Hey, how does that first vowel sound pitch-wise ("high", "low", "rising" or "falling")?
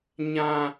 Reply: high